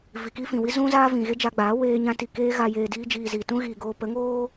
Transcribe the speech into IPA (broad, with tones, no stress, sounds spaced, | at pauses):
v i˨ k i˦ f ĩ˨ w i˦ z ũ˦ z aː˦ v ĩ˨ ɣ e˦ d͡ʒ a˧ ɡ͡b aː˨˦ w eː˧ ɲ ã˧ t i˨ k eː˧ ɣ a˨ j eː˨ d iː˧ d͡ʒ iː˨ z iː˨ t ũ˦ ɣ iː˨ ɡ oː˧ p ə˨˦ ŋ oː˦